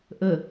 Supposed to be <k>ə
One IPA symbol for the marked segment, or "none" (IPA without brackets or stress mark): ʔ